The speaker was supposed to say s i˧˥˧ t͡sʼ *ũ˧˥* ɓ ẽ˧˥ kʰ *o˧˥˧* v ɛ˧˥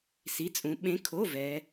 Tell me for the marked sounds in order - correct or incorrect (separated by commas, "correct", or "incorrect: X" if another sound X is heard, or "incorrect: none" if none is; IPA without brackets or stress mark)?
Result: correct, correct